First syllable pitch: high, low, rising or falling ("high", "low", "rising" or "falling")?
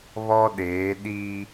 high